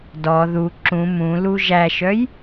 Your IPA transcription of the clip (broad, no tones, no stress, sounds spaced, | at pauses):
d ɔ ð u ǁ ũ m ũ l u ʒ æ ʃ œ j